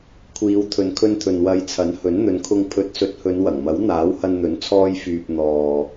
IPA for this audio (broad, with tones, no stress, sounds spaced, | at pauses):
kʷʰ iː˨˧ w t̪ʰ ɵ˨˧ n kʰ ɵ˧ n t̪ʰ ɵ˨ n w ɐ˨˧ j t͡sʰ ɐ˨˥ n h ɵ˨˥ n n̪ ɵ˨˧ n kʰ ʊ˧ ŋ pʰ ɵ˨˥ t̚ s ɵ˨˥ t̚ h ɵ˨˧ n w ɐ˨˩ ŋ m ɐ˨˥ w n̪ aː˨˥ w h ɐ˧ n n̪ ɵ˨˥ n t͡sʰ ɔː˧ j f yː˨ p̚ n̪ ɔː˨